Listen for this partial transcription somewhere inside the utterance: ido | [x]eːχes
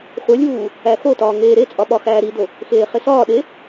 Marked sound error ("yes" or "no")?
no